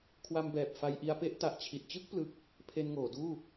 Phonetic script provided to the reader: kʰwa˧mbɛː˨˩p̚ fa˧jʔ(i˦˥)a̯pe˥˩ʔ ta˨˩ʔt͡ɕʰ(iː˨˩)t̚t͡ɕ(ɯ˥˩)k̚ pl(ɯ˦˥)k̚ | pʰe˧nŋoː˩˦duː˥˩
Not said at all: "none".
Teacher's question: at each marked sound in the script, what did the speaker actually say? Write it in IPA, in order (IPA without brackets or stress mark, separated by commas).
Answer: i˧, i˨˩, ɯ˥˩, ɯ˦˥